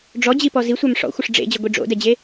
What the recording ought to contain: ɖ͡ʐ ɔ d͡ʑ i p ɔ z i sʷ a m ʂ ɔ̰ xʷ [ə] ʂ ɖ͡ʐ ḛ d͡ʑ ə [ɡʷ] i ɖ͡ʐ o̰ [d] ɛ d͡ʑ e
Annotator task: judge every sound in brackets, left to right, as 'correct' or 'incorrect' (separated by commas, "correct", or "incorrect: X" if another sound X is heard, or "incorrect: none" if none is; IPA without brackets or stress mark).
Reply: correct, correct, correct